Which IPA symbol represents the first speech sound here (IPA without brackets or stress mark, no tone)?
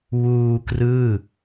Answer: w